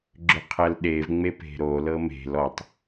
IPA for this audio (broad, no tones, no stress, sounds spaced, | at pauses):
ɡ͡ǁ ʏ qʰ ɜ l ɗ e v ŋ͡m e p e̤ ɾ o l ɤ m e̤ l ɔ tˤ